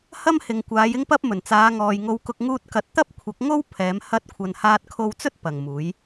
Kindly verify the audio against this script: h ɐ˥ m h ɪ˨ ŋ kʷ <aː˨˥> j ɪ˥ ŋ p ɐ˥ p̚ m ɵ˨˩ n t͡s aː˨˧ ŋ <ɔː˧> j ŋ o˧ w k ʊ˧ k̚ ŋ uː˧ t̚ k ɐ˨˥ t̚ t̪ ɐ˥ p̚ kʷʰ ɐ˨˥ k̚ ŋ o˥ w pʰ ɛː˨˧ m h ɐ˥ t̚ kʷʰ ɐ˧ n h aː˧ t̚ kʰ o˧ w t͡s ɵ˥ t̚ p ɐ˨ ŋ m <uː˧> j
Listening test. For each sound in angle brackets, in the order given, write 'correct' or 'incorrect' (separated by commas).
incorrect, incorrect, incorrect